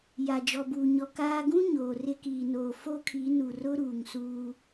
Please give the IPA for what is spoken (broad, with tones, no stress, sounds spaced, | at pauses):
j a˨ d͡ʒ ɔ˨ b uː˨ ɲ ɔ˨ k aː˦ ɡ ũ˦ ɲ oː˨ r ɪ˦ k iː˨ n oː˨ f o˦ kʰ i˨˦ n u˨ r ʊ˦ ɾ uː˨ ŋ s uː˦